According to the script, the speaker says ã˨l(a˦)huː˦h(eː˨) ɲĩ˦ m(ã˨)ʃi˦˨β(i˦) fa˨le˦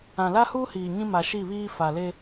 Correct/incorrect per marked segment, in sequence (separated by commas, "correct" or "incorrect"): correct, incorrect, incorrect, incorrect